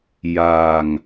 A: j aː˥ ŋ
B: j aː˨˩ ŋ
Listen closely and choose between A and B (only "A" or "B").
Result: B